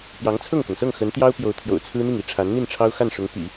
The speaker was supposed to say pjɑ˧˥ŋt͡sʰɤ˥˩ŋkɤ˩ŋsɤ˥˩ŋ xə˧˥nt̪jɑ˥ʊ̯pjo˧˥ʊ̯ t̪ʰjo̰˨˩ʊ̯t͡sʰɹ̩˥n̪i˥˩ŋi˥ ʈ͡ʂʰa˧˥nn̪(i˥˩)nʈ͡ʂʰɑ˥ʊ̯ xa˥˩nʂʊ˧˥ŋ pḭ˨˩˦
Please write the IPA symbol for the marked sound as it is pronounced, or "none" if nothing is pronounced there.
i˥˩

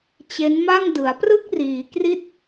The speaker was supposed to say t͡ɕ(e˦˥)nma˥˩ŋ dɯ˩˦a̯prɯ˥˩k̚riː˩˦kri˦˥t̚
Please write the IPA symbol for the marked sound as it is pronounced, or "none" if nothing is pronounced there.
e˦˥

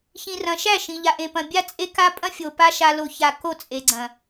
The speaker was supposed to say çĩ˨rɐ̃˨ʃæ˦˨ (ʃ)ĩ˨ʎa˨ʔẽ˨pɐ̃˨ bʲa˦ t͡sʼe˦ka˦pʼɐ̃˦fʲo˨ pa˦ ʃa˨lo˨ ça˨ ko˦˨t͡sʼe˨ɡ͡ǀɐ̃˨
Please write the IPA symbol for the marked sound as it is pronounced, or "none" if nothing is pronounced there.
ʃ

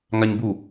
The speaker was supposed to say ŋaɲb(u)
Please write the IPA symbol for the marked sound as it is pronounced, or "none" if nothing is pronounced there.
u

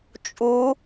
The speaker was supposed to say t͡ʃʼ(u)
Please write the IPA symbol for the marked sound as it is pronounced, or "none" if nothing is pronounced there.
u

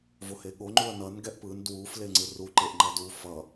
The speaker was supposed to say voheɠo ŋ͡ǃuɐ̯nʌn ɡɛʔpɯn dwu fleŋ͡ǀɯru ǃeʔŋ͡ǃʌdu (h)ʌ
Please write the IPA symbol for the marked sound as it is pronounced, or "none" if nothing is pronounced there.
f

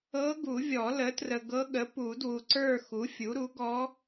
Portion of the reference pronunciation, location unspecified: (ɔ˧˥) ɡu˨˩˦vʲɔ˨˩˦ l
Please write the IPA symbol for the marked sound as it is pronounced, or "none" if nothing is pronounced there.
ɤ˧˥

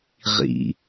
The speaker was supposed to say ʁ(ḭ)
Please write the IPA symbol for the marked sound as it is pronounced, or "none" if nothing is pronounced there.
ḭ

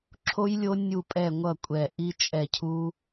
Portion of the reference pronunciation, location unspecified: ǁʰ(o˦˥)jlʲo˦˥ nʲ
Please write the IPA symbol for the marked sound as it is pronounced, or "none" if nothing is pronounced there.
o˦˥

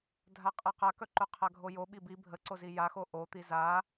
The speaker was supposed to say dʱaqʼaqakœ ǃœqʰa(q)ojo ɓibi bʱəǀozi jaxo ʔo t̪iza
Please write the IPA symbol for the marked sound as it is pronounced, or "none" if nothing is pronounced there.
ɡʱ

